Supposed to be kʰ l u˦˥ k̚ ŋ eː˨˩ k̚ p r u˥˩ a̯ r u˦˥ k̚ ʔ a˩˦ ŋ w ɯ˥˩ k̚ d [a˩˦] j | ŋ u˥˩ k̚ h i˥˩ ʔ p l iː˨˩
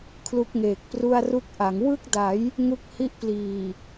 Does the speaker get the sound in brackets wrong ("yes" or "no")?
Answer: no